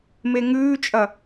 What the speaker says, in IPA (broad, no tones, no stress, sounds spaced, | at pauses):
m e ŋ ʉː t͡ʃʼ ɐ